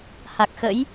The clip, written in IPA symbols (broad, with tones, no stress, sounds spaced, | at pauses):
h a˨˩ k̚ x ə̰˧˥ j